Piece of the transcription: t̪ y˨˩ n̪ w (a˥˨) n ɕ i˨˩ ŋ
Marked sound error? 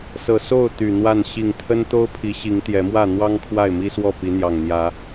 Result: no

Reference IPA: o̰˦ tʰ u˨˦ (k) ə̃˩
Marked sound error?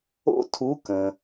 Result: no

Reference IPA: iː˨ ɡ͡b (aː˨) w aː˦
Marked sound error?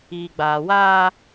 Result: no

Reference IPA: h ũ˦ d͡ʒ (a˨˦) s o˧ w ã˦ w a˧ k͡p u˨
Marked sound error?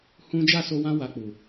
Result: yes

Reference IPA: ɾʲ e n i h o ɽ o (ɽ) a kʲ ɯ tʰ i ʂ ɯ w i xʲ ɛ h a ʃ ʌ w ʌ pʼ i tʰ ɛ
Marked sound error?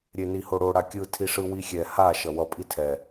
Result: no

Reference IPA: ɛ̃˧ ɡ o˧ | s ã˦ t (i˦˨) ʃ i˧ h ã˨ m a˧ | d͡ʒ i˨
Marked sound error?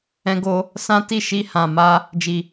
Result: no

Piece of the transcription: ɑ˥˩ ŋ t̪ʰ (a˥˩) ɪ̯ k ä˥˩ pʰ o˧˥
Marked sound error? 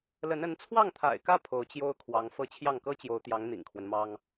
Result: yes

